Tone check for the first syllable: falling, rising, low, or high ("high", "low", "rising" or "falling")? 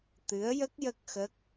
rising